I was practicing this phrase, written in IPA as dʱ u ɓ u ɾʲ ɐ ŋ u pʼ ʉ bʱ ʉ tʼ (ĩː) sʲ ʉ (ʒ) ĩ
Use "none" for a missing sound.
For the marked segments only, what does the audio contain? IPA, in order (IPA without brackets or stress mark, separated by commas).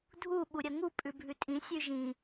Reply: ĩ, ʒ